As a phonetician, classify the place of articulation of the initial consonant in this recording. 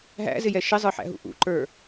glottal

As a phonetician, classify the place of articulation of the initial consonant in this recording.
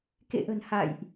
velar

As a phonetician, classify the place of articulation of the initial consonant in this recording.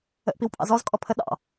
glottal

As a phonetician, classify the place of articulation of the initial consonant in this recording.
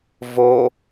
labial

